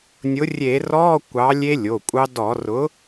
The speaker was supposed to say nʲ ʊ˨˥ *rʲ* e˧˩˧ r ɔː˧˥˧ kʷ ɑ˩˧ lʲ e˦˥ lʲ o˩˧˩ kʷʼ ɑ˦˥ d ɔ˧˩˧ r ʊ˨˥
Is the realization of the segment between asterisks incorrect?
no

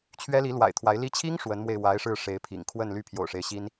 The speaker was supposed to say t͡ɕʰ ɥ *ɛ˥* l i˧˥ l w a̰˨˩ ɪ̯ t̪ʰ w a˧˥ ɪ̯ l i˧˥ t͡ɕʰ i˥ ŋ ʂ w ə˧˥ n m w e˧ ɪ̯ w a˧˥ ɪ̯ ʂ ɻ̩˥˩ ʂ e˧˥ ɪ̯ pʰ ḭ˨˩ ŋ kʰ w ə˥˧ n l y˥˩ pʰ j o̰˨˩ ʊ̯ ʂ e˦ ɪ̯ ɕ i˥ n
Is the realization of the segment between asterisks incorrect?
no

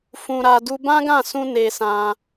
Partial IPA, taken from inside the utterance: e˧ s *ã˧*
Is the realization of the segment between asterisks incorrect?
no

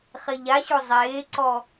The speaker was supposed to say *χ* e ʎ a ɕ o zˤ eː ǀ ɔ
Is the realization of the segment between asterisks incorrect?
no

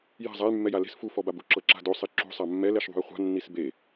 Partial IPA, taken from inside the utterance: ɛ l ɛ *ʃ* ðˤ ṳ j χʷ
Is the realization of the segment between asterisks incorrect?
no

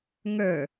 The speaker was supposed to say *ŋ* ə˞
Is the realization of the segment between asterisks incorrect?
no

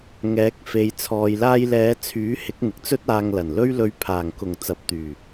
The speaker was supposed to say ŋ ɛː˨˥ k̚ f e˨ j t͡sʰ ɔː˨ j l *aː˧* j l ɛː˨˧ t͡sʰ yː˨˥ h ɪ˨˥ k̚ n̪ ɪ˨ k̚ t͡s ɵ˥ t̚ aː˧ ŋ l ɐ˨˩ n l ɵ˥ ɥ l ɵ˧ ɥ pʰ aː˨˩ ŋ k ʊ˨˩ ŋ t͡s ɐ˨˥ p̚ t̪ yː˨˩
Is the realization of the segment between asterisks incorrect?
no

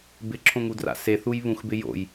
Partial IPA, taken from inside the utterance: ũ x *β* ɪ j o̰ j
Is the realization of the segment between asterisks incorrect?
yes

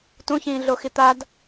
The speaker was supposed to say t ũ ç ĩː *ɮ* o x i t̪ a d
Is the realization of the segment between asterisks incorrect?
no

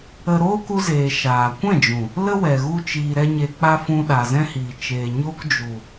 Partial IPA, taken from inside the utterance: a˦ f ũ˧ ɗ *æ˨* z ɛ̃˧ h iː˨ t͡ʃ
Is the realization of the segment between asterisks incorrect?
yes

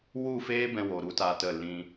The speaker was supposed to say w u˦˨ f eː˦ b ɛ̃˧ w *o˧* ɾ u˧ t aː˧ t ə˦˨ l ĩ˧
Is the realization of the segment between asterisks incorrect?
yes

